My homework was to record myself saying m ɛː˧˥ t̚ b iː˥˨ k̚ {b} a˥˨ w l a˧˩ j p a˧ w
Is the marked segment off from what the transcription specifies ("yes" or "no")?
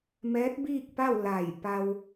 yes